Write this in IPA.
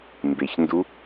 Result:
m b e ç n d u

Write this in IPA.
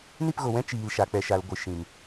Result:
n i˦˨ p ɣ o˨ w ɛ̃˦ t͡ʃ iː˨ l ʃ a˨ k͡p ɛ˨ ʃ a˨ l ɡʷ ɨ˨ ʃ ĩ˨ m

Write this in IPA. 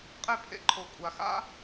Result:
qʼ e˥˩ pʰ ḛ˧ ǃʰ o˩˥ kʷʼ a˩ x a̰˥

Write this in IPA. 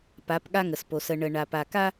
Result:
p a˨˦ p ɠ a˦ ŋ ə˨ s p o˨ s ə˨ ɳ ə˨ ɳ a˨ p a˨ k a˦

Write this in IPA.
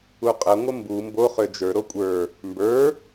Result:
u qʼ ə ŋʷ ə m b u m b o χ ø d͡ʒ ə˞ ɾ o kʷʼ ə˞ | m b ə˞

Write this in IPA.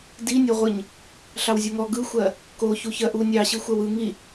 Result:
d i nʲ ɔ ʁʷ ɯ ɲ | ɬ ɑ w zʲ o ŋ ɔ ɡ ɯ xʷ ɜ | k o ç u ç ɜ ʔ u nʲ ɑ ɕ ɯ xʷ ɜ w ɯ ŋ i

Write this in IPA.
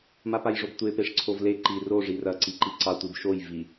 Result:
m a p a j ʐ o b tʷ e p e ʂ ǀʰ o v l e ǃ i r o ʐ i r ɐ ǀ i ǃ i ǀ ɑ tʷ i b ʃ o j v i

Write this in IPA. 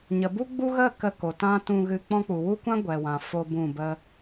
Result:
ɲ ə˨ b u˦ ɡ͡b u˦ ɣ ə˦˨ k ə˧ k o˨ t ã˦ t ũ˧ ɣ ɨ˧ k͡p ɔ̃˧ k͡p u˨ w u˦ kʷ ã˦ ɡʷ ɛ˨ w ã˨ f o˦ b ũ˦˨ b ə˦

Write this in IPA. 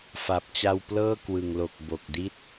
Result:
f a˨˩ p̚ t͡ɕ a˧ w p l ɤː˥˩ k w ɯ˨˩ ŋ l o˨˩ k̚ b o˨˩ k̚ d i˥˩ t̚

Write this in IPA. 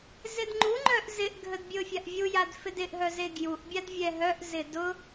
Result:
z ɪ d ŋ͡ǃ u ŋ͡ǃ œ ʔ z ɪ ʔ ɡʱ ə d bʲ ʊ fʲ a ʔ vʲ u j a d f ɪ d ɪ ʔ ɦ œ z e ɡ j u ʔ bʲ a d vʲ ɛ ɦ œ ʔ z ɪ d ʊ

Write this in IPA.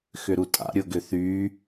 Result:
x ʏ ɾ u tʼ a̰ ɾʲ ʊ ɡ ʏ θ y

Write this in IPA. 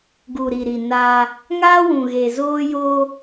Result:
ɡ u˨ ɾ i˨ ɾ i˨ n aː˦ | ŋ aː˦ w ũ˨ ɣ e˨ z oː˦ j oː˦

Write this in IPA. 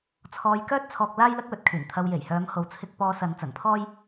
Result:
t͡sʰ ɔː˧ j k œː˥ t̚ t͡sʰ ɔː˧ k̚ l aː˥ j l ɐ˥ k̚ w ɵ˧ t̚ kʰ yː˨˩ n t̪ʰ ɐ˧ w j e˨˩ j h œː˨˧ m h o˨ w t͡sʰ ɪ˧ k̚ p ɔː˧ s ɐ˨˧ n t͡s ɐ˨˩ n pʰ ɔː˥ j

